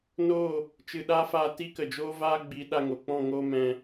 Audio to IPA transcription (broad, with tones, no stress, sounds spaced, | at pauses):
n oː˦˨ | t͡ʃ ɨ˨ ɗ a˧ f aː˧ t i˦ k ə˨ d͡ʒ oː˦ v aː˦ ɡ͡b i˨˦ ɗ a˧ ŋ o˨ k͡p ɔ̃˦˨ ŋ oː˦ m ɛ̃˧